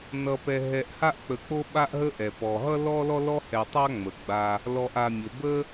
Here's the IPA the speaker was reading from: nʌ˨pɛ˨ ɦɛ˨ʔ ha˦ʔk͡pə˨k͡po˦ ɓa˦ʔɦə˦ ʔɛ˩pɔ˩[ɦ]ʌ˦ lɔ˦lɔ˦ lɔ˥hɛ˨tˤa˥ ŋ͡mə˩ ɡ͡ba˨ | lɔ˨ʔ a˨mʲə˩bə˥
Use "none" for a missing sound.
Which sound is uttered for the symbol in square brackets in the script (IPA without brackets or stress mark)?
ɦ